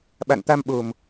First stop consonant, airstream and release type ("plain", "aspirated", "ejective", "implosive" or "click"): implosive